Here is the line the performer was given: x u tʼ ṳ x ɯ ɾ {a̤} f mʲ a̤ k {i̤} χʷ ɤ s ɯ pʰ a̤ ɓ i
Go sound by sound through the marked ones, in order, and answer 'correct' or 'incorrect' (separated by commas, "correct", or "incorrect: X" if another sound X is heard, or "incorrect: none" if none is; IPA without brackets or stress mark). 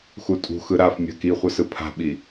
incorrect: a, incorrect: i